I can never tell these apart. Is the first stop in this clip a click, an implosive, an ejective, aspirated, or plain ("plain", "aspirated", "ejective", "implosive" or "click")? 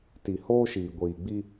plain